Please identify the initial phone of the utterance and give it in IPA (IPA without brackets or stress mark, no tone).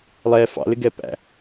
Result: lˠ